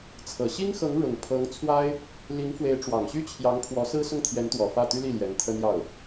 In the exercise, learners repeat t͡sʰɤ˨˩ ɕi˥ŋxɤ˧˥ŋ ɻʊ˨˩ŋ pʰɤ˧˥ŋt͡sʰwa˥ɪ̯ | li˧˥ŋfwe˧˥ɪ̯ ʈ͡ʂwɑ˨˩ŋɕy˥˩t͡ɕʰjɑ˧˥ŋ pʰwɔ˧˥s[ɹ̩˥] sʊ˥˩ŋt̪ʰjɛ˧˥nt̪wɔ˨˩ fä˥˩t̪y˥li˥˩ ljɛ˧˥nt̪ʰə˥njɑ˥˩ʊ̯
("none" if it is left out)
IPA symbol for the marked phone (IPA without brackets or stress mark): ɹ̩˥